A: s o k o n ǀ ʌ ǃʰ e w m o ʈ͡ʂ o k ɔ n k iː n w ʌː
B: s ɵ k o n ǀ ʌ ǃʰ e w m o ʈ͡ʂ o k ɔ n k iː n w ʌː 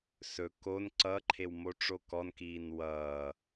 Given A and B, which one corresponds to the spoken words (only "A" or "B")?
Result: B